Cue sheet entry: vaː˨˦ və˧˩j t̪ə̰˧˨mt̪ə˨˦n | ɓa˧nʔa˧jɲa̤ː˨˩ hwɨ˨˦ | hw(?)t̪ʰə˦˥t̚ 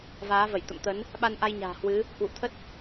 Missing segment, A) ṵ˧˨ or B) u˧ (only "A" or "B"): A